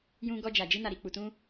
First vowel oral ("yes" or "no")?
no